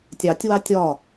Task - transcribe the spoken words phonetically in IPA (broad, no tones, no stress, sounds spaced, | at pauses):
tʲ ɑ tʲ w ɑ tʲ ɒ